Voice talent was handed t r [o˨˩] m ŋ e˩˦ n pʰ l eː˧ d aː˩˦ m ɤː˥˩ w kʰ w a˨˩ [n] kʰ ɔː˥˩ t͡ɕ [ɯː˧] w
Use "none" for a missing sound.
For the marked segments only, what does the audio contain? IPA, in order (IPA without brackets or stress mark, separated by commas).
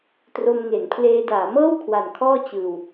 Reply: o˧, n, ɯː˧